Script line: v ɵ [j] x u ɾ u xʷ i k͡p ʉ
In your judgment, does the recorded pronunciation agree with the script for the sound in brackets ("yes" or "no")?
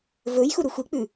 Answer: yes